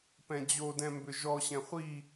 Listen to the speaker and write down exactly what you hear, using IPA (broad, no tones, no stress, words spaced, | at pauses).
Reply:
pɛ̃d͡ʑodɛ̃ mbʏʒɔɕɛ̃ χʷi